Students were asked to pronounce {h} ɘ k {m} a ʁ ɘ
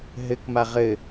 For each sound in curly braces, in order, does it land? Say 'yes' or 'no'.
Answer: no, yes

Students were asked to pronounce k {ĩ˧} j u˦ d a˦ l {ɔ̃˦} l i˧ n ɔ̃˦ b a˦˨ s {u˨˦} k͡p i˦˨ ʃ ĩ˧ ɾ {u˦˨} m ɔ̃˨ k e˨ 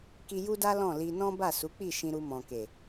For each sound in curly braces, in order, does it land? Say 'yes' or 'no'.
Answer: no, no, yes, no

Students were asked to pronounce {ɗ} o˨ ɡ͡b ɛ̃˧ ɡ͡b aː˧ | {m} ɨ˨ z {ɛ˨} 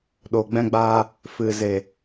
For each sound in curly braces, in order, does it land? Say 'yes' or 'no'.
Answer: yes, no, no

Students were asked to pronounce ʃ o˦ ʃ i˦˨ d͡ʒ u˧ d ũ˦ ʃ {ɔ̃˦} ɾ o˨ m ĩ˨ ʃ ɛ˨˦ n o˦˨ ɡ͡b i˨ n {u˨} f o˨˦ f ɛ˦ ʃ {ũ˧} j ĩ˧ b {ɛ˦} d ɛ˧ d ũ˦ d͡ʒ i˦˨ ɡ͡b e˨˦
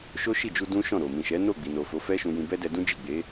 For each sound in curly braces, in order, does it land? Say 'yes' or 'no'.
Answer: no, no, yes, yes

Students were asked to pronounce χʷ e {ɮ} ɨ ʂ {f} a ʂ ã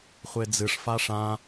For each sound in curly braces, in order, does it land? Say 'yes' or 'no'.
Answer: no, yes

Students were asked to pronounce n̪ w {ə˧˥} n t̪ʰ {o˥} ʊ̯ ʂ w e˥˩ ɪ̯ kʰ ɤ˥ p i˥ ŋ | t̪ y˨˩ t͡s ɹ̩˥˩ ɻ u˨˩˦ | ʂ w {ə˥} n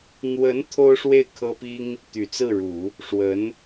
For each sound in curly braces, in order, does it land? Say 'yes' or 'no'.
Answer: yes, yes, no

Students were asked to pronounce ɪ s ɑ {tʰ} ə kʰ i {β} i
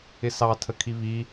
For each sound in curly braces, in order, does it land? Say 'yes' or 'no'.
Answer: yes, yes

